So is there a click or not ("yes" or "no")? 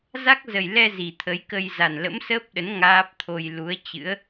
no